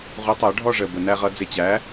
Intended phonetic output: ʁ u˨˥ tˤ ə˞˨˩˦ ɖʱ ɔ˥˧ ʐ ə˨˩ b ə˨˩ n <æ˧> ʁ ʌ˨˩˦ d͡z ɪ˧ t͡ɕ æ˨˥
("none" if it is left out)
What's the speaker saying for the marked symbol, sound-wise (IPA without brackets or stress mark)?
æ˧